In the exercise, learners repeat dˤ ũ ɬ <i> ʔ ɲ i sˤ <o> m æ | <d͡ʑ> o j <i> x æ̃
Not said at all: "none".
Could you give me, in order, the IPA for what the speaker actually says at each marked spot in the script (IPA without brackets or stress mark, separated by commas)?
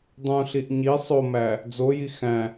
i, o, d͡z, i